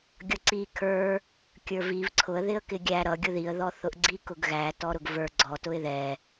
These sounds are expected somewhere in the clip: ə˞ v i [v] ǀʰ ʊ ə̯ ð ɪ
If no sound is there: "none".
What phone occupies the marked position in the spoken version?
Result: v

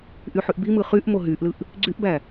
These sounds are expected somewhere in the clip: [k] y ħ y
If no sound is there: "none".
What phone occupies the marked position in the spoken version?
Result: ʔ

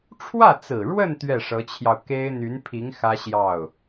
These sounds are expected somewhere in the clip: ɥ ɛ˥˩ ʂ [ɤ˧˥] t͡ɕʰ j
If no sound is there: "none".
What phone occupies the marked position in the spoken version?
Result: ɤ˧˥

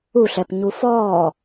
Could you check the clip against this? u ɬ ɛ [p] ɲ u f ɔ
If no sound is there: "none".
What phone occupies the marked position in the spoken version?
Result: p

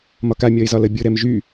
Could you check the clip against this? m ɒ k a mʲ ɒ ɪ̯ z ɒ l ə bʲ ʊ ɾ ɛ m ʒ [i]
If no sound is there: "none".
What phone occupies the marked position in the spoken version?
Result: y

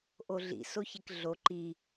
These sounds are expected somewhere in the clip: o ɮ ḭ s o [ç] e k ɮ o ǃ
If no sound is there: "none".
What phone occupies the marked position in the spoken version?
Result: ç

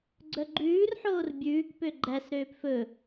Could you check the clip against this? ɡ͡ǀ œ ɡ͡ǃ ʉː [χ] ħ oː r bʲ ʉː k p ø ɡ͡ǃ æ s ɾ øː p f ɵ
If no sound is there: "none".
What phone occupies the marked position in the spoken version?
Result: r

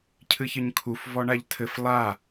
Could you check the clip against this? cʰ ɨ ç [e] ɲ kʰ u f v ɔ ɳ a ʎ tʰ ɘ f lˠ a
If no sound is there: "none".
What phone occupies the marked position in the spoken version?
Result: ɘ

